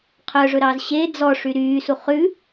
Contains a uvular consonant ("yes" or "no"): yes